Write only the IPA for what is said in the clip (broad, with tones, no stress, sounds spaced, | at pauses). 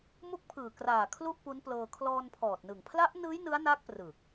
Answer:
m u˦˥ k̚ pʰ ɯː˨˩ k r aː˨˩ kʰ l u˥˩ ʔ p u˦˥ n p l ɤː˧ kʰ l ɔː˧ n pʰ ɔː˨˩ t̚ n ɯ˨˩ ŋ pʰ l a˦˥ ʔ n ɯː˦˥ j n ɯ˦˥ a̯ n a˦˥ k̚ p r ɯː˨˩ k̚